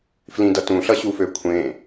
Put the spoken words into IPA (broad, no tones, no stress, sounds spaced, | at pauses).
f l ĩ d ʌ t ũ ɬ ʌ ɕ u f ø kʷʰ ẽ